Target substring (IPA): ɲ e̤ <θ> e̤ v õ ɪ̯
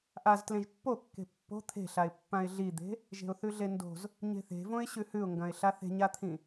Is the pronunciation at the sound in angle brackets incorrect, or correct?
correct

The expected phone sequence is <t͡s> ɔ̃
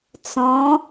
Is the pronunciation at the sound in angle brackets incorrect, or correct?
correct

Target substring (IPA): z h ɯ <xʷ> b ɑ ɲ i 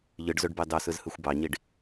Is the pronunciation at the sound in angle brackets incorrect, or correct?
correct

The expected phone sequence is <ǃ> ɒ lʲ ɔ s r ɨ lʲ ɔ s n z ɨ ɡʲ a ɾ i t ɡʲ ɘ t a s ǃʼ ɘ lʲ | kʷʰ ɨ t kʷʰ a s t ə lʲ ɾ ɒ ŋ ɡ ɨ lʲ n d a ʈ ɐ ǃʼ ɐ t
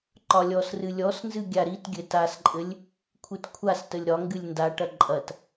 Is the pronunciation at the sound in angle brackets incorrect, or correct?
correct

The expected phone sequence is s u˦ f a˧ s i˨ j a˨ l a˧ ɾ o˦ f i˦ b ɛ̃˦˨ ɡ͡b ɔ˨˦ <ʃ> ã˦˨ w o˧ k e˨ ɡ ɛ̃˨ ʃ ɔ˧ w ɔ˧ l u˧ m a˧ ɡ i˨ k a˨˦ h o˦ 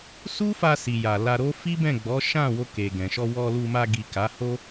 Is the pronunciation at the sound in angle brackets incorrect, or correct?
correct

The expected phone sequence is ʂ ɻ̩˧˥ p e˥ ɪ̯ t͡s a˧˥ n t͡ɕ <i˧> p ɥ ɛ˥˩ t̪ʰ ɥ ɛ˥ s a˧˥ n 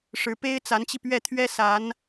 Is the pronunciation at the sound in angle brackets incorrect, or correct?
correct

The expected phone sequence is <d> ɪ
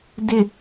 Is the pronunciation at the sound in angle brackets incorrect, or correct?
correct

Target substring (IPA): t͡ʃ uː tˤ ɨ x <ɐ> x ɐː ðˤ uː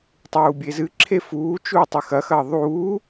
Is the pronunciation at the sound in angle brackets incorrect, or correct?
correct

